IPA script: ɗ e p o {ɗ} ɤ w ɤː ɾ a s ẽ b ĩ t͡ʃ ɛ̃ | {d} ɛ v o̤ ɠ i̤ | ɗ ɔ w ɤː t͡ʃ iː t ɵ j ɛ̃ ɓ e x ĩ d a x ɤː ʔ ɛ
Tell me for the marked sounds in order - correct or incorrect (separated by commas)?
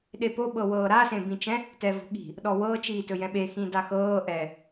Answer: incorrect, incorrect